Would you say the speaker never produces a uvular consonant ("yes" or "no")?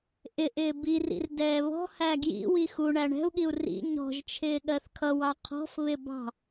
no